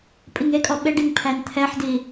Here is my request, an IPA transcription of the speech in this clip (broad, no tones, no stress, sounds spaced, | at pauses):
pʼ i ŋ e kʼ ɔ ɓ e ɖ i ŋ pʰ æ n t̪ʰ ɛ ħ d i